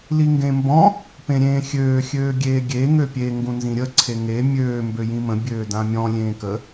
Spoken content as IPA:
liŋɡẽmbɔ̃ | pẽɾʲẽːxʲøː xʲøːɡʲeːɡʲe ŋøpʲe ŋɡũnzĩɾʲə ǀʰeŋe mʲøː mbøjĩmə̃ bʲøːdãmʲɔ̃ lʲẽːkə

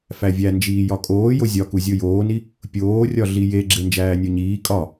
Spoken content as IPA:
fævʲæ nd͡ʒiːjɒkʼoː jozʲɒku zʲojoːni | pʲoːrʲɒ ɮije ɡ͡ǁend͡ʒæːnʲoɲiː kʼɒ

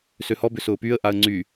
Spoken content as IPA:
søhɔbʏ sʊːpyə̯ʔaə̯ ŋ͡ǀy

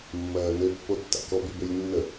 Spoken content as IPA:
mːɜːnø pːotːa̰kɔb ybølʲnːə

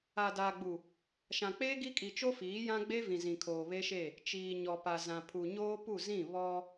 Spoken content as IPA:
a˨daː˨ɡ͡bu˨ | ʃã˨k͡peː˦ɡi˦kʼi˨ t͡ʃo˦ fiː˨˦jã˦ɡ͡be˦vĩ˨ zĩ˨kʰoː˨ βe˦ʃe˦˨ | t͡ʃiː˨ ɲɔ˨pa˨ zã˨pʰu˨ ɲoː˦pu˦˨ zĩ˦˨ βɔ˦

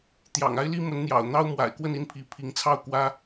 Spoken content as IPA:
t̪jɑ̰˨˩ŋa˥ɪ̯li˥mə˧˥n n̪jɑ̰˨˩ʊ̯n̪ɑ˥ʊ̯ mwa̰˨˩ɪ̯kwə˥˧ni˥˩npʰi˧˥ pʰi˧˥ŋt͡sʰɑ˥˩ʊ̯ kwä˥

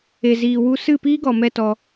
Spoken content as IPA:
e˨ziː˨wu˧ sɨ˦˨piː˦ɡɔ˨ mɛ˦tɔ˧

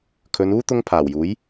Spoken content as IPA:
kʰɵ˨˧nuː˥ t̪ʊ˥ŋ pʰaː˨˩wjuː˨˥j

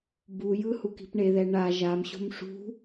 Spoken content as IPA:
bujɯ huki̤pɳeðɛ ɳa ʒamɕo̤m ʂṳ

